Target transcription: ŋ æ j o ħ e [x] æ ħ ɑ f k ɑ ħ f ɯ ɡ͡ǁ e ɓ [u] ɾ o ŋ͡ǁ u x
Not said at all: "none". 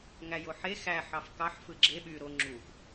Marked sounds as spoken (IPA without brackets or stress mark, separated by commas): x, y